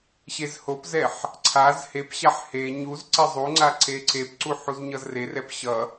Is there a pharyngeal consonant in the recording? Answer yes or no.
yes